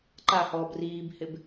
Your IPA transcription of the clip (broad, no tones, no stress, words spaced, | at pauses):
ǃahɔːb riːbhɪb